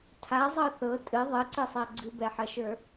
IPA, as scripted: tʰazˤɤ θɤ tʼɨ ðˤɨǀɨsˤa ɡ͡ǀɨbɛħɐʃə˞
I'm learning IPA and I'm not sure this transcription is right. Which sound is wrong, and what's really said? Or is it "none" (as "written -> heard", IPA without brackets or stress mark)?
none